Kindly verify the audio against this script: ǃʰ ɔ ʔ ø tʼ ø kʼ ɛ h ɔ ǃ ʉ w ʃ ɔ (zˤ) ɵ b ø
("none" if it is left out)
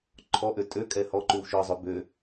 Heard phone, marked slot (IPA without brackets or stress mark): zˤ